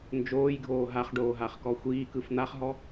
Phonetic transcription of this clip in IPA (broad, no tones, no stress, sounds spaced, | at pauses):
n d͡ʒ oː j ɡʱ oː ɦ a χ ɖ oː ɦ a χ k ɔ xʷ iː k ɯ f n̪ a χ ɦ ɔ